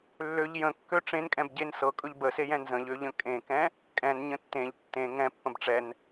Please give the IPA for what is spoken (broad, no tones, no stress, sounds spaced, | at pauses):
lː ø ʎ j ə̃ kː ø ʈ͡ʂ ẽ n kʼ ɛ̃ b ɟ e n s ɤ kʼ ɵ ʎ b ə s e j ɛ̃ n z ə̃ ʎ ø ʎ ə̃ kʼ ẽ k ɛ̃ | kʼ ɛ̃ n ɲ ə̃ tː ẽ ʎ tː ẽ ŋ ɛ̃ pː ə̃ b ʈ͡ʂ ɛ n